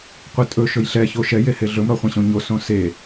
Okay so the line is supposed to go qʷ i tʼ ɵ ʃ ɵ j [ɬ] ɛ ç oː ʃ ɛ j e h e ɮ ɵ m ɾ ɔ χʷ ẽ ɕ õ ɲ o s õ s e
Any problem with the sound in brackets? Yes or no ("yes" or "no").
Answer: no